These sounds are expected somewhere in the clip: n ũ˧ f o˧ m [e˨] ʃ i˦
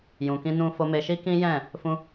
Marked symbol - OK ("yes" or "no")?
no